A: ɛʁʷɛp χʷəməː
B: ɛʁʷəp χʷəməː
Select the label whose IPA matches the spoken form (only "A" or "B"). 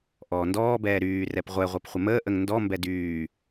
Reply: A